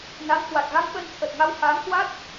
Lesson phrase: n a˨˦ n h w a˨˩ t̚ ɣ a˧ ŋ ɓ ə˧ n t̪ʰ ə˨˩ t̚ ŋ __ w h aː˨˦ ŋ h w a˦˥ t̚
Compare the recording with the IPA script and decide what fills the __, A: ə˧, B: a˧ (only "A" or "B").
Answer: B